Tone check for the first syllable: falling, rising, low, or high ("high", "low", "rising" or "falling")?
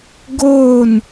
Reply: falling